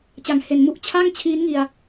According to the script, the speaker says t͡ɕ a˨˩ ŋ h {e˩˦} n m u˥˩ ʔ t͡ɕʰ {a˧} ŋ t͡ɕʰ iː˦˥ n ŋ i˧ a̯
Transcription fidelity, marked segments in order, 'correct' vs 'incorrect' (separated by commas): correct, incorrect